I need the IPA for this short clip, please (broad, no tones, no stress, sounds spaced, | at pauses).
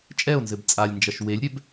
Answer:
t͡ʃʼ ɛ o̯ n z ɘ b t͡sʼ a lʲ n d͡ʒ ɐ ʃ w e lʲ ɾʲ ɛ b